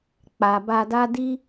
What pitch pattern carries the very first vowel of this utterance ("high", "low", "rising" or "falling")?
low